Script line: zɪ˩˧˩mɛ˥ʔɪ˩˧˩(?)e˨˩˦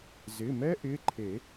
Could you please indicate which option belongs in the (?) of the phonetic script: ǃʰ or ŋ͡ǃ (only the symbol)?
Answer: ǃʰ